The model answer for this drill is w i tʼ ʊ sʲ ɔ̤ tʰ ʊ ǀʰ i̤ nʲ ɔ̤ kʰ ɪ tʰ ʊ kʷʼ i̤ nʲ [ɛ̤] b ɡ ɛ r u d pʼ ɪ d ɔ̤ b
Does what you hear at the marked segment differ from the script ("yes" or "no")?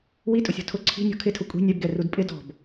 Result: yes